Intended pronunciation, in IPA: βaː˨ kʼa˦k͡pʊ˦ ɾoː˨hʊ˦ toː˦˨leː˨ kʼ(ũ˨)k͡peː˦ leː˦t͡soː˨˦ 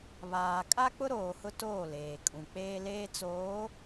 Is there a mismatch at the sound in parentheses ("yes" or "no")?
no